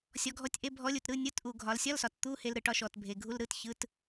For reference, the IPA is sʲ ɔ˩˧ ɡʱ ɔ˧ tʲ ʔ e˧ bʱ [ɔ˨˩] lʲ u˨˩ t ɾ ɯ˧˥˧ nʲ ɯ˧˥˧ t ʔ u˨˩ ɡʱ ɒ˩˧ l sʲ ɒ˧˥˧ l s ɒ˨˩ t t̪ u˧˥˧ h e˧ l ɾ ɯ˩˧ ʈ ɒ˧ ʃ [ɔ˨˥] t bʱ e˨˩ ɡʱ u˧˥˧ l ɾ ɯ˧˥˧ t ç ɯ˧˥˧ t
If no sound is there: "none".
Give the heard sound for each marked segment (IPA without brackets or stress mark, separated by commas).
ɔ˨˥, ɔ˨˩